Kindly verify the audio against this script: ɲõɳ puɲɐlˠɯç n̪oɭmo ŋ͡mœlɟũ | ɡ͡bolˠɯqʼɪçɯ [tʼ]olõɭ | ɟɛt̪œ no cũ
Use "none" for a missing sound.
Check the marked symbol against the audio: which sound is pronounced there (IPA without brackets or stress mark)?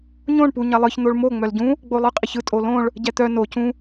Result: tʼ